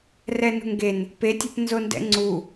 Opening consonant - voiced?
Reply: yes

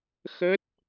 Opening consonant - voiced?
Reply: no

